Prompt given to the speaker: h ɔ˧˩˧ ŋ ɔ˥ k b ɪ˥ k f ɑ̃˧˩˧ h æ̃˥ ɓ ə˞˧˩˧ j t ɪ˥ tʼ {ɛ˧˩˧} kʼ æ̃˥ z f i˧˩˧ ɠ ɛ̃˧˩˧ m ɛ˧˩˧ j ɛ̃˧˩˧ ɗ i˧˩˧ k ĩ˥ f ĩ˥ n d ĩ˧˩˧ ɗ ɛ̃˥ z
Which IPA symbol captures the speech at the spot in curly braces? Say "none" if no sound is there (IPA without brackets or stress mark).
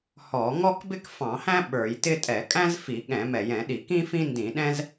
ɛ˧˩˧